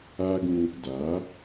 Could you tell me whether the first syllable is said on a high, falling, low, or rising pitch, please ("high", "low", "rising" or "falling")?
high